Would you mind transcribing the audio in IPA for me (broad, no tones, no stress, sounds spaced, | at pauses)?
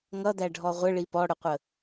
ŋ ʌ d̪ æ ɖʱ ɔ ʁʷ ə ɭ i p ɔ ɽ ʊ qʷ ə